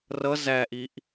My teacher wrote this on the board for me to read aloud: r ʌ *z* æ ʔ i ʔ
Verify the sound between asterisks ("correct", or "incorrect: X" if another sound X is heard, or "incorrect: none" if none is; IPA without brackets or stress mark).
correct